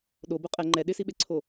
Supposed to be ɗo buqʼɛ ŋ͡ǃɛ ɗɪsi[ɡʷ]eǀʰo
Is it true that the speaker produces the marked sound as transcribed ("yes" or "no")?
no